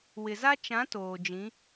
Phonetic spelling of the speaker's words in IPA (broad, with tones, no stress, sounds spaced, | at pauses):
w ɪ˨ z a˦ t͡ʃ ã˨˦ t oː˨ d͡ʒ ĩ˨˦